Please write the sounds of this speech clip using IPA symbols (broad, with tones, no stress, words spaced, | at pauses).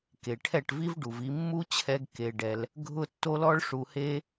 ke˨ʈʰɛ˦˨ʈvi˦v ɖu˨vi˧mːu˦t͡ɕʰɛ˧ɡ ke˧ɖɛ˧l | ɡʱʊ˦tːo˦lɔ˦ɭ ʂu˧he˦